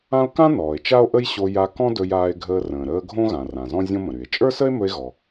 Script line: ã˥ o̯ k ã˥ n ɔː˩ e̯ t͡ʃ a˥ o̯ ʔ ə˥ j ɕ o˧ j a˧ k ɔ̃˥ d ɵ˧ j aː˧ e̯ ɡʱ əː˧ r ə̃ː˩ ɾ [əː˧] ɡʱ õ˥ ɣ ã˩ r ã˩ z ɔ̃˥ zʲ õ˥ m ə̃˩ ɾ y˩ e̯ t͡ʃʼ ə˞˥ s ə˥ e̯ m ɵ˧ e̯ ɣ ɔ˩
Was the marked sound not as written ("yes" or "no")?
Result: no